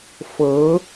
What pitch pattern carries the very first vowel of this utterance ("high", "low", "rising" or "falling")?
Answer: rising